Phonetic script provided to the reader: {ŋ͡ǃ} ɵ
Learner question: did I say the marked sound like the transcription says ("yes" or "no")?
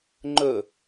yes